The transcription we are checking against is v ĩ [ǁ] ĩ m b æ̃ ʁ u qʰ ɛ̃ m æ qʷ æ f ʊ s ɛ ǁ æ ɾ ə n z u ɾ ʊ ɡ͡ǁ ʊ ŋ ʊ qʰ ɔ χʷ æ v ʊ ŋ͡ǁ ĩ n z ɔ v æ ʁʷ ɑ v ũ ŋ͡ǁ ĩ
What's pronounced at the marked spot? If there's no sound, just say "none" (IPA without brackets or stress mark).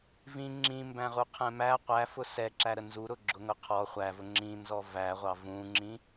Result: ŋ͡ǁ